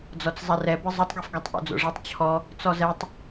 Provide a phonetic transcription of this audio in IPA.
d͡z ɔ t͡s zˤ ɛ r ɛ b ɯ zˤ u tˤ ɡ ɛ f ɡ ɔ tˤ ʔ o̰ d͡z o̰ ʐ i tˤ t͡ɕʰ ɔ | t͡s ɔ z ɛ tˤ

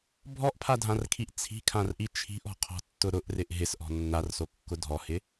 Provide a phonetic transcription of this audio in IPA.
bʱ ɔ ʔ pʰ a dʱ ã r kʰ i ʔ t͡sʰ i̤ kʰ ã r ʔ i t͡ʃʰ i̤ ʔ ɔ̤ qʰ ɔ̤ tː ʊ ɾ ʊ ʔ r ɪ ʔ ɦ ɪ s ʔ ɔ̤ nː a r s o kː ʊ dʱ ɔ h ɪ

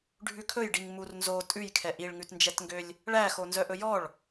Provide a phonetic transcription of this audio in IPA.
ɖʱ ʉ kʰ ɵ j ɖ i ŋ m u r n z o tʼ ʉ j kʰ ɛ ʔ i ɭ ŋ ʉ t n d͡ʒ ɛ t ŋ ɡ ø lʲ | ɭ æ x o n z œ ʔ ɵ j ɔ ɭ

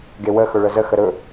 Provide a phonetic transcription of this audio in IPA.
ɡ e w ə x ɵ ɭ ə z ə x ə ɾ ɵ

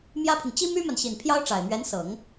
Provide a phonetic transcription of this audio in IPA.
m j ä˥ pʰ i˨ ŋ t͡ɕ i˥ m y˥ m a˨ n ɕ i˨˩ n pʰ j ɑ˥ ʊ̯ ʈ͡ʂ a˨˩ ɪ̯ m ɥ ɛ˧˥ n s ɤ˨˩˦ ŋ

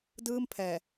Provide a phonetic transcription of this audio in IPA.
d ɯː˥˩ m pʰ ɛː˨˩

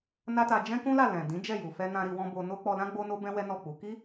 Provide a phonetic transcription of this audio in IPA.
n a˦ t a˧ d͡ʒ ɛ̃˦ k ũ˦ l a˦˨ l ɛ̃˨ d ĩ˨˦ d͡ʒ ɛ˦˨ j u˨ f ɛ˧ n ã˧ ɾ i˧ w ɔ̃˦ b o˧ n o˦ k͡p ɔ˧ l ã˦ ɡ͡b o˦ n o˦ b ɛ̃˦ w ɛ˦ n ɔ˦˨ k͡p u˨˦ k i˦

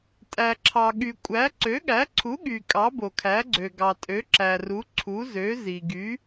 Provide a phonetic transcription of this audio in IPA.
tʼ æ˩ ǁʰ ɑ˩ ɠ y˩ kʷʼ æ˩˥ ǀ ø˩˥ ɠ æ˩˥ ǀʰ u˩˥ ɠ y˩ kʼ ɑ˩˥ b o˩ kʰ æ˩˥ ɡ͡ǀ ø˩ ɡ ɑ˩ tʼ ø˩˥ ǁ æ˩ r u˩˥ ǀʰ u˩˥ z ø˩˥ z i˩ ɡ y˩˥

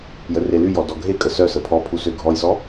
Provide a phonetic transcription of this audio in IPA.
j ə r e l y j ɔ d ɔ ɡʱ e kʼ ə s œ s ə pʰ ɔ pʰ u s ø ɡʱ ɔ j s ɔ

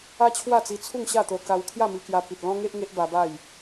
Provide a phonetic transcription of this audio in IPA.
a˦ t͡ɕʰ w a˥˧ t͡s i˧ t͡sʰ u˥˧ ŋ ɕ a˥˧ t̪ o˧ k a˧ w kʰ j a˥˧ m i˧ k j a˧ p i˨ t̚ l ɔ̃˦ ŋ e˦ ʔ ŋ e˦ ʔ b a˧ b a˥˧ j

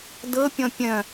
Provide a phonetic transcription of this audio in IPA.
d ɤ pʲ ɔ̃ pʲ œ̃

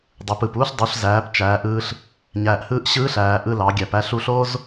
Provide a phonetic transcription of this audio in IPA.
dˤ e˩˧ p ɯ˩ p uː˥ ɬ dˤ u˩˧ ɬ z æː˩˧ p t͡ʃ æː˩˧ ʔ ɯː˧ ɬ | ɲ æː˩ ʔ h ɯː˧˥ ʔ ɕ ɯː˧˥ ɬ æː˩ ʔ ɯ˧ l ɑ˩˧ ɡʲ æ˩ p æ˧ ɬ u˧ ɬ o˥ z

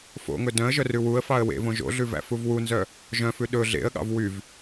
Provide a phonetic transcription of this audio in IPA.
f o̰ ŋ ɵ d œ̃ ə̯ ʒ œ r ʉ w u ə̯ f ɑ ə̯ w ḛ v õ ʒ o̰ ɮ ʉ v æ̰ f u v w u n z œ | ʒ œ̃ f ʉ ɗ ɵ ɮ ḛ ə̯ ɠ ɑ̰ v w y v

